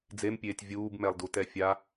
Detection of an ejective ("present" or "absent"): absent